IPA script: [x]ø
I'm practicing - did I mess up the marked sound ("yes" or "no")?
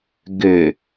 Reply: yes